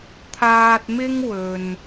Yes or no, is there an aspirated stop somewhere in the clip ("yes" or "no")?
yes